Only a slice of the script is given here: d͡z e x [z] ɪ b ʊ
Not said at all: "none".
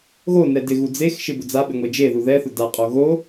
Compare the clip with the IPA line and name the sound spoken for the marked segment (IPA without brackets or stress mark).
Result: ʃ